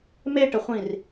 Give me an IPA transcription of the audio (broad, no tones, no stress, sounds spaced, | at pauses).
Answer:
m e ʈ ə χʷ ĩ r